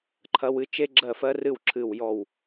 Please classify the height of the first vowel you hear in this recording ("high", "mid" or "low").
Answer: low